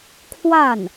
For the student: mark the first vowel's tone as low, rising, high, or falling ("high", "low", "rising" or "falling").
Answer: falling